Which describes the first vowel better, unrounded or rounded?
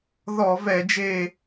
rounded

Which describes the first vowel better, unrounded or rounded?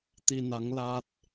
unrounded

